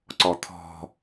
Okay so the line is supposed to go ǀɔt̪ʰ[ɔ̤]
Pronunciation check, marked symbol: correct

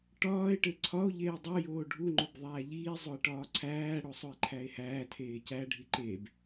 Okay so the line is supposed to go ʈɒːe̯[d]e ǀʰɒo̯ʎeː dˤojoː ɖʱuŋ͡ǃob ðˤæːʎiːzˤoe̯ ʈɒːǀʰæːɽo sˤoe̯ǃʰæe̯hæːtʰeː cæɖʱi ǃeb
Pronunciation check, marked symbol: incorrect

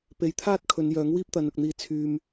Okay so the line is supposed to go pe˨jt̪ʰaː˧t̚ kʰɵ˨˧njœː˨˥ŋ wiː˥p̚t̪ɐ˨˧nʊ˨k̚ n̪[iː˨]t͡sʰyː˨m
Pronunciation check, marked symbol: incorrect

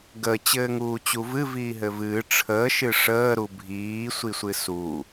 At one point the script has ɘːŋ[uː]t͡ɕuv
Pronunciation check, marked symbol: correct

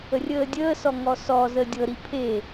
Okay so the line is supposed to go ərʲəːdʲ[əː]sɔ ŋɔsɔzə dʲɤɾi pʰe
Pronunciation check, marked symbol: correct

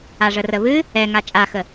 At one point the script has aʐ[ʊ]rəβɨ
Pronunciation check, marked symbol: incorrect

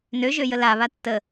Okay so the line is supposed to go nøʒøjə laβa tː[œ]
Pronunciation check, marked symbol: incorrect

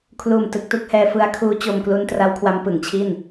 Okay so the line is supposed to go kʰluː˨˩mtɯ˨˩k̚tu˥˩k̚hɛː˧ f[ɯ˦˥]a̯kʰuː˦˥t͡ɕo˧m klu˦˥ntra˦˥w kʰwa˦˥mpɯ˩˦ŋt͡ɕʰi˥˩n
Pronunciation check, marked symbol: correct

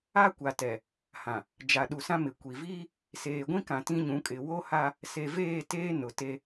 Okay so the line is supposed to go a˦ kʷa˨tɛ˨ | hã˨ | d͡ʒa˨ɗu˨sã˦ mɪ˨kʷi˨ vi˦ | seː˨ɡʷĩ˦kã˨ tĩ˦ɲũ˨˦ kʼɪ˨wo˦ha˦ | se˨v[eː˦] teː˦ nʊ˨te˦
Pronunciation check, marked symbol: incorrect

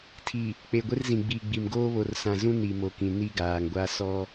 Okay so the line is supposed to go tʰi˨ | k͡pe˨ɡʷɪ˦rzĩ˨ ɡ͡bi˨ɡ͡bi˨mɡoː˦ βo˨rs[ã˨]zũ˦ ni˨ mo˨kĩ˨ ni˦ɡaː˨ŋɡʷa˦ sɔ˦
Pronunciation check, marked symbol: correct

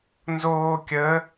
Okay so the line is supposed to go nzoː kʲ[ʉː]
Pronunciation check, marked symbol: incorrect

